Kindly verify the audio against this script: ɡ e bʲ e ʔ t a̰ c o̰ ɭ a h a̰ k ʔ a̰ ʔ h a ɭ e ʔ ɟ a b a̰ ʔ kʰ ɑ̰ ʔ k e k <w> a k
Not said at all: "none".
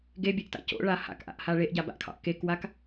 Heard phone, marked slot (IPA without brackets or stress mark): w